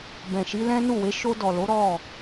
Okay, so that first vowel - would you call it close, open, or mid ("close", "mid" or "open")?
mid